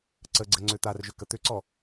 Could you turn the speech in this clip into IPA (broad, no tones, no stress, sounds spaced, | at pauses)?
ǀ ə ɡ͡ǀ ə ŋ͡ǀ ʏ t̪ a r ʒ ʏ k ə t̪ ʏ ǀ ɔ